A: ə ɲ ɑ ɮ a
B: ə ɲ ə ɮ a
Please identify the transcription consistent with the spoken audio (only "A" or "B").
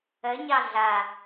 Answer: A